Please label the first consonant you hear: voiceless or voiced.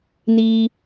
voiced